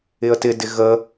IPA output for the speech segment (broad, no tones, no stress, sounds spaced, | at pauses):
ɪ ə̯ t ɪ d ɪ ɣ ə